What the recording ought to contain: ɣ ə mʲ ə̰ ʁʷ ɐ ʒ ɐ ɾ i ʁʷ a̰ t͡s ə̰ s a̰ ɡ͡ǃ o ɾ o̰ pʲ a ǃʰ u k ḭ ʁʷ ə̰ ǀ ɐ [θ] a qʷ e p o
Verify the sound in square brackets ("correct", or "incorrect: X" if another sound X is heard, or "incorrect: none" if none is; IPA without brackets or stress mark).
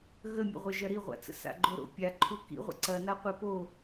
incorrect: n